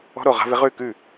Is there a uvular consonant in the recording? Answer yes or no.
yes